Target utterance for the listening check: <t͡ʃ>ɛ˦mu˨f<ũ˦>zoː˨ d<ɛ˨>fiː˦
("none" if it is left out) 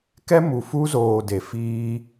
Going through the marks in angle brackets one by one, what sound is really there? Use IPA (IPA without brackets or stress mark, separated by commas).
k, u˦, e˨